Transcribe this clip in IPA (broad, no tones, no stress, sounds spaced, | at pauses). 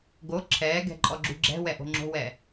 ɡ o ǁʰ ɛː ɡ ɛ̤ ǃʼ ɔ ɡ͡ǁ ṳ ɡ͡ǁ ɛ̤ w ɛ ʔ o̤ ŋ͡ǁ o̤ w ɛ